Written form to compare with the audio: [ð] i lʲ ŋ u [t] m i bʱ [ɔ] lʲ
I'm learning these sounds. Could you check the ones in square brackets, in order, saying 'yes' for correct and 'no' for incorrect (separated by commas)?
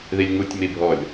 yes, no, yes